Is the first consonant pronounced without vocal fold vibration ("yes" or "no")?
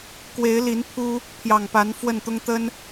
yes